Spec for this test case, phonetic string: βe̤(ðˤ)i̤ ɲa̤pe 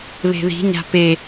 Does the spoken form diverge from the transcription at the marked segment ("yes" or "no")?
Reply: yes